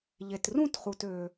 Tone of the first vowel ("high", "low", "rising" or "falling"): low